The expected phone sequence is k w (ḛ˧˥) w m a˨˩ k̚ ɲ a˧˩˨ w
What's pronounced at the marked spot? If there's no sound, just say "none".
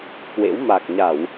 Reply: ḛ˧˥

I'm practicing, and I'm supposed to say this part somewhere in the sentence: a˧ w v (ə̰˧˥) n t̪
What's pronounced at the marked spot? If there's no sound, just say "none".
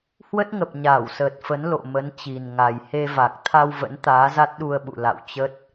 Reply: ə̰˧˥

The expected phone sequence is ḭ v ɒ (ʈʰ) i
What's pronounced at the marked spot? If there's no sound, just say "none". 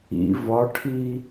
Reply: ʈʰ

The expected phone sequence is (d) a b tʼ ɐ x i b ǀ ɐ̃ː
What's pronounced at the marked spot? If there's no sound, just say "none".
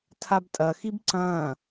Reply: tʰ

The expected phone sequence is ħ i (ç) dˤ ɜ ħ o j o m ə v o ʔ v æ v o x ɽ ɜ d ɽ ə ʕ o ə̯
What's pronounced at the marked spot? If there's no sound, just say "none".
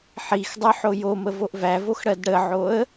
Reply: x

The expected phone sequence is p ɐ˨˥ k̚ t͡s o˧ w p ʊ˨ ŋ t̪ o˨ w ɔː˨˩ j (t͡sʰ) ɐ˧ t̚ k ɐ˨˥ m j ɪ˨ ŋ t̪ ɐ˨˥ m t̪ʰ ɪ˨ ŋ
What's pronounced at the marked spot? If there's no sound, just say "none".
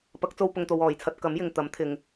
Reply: t͡sʰ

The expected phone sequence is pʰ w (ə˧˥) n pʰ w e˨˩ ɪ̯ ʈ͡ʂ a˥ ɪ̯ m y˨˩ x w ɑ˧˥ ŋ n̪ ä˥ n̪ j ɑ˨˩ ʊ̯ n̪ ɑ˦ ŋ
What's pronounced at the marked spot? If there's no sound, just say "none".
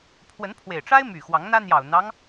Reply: ə˧˥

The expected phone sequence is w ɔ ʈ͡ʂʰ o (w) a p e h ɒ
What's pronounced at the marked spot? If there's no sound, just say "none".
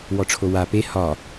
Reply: w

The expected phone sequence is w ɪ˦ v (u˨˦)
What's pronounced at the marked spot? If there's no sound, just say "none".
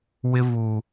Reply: u˨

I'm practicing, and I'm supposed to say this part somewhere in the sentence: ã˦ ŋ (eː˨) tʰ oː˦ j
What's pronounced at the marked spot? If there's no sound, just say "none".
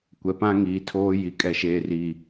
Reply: iː˨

